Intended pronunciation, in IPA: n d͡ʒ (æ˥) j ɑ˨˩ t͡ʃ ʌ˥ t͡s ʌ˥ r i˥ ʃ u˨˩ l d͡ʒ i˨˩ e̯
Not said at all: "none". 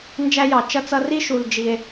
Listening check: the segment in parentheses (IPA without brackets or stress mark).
æ˥